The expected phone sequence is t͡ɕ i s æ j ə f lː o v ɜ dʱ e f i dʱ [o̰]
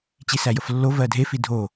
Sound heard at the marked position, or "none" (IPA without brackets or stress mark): o